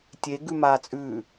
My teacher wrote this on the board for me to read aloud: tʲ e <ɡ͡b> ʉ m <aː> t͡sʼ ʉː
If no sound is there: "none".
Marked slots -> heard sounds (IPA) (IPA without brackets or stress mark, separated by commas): ɡ, aː